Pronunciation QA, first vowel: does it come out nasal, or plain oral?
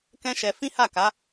nasal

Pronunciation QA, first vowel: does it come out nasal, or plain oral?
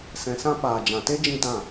nasal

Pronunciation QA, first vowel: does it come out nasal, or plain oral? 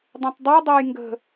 nasal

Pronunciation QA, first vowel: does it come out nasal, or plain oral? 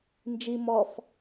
oral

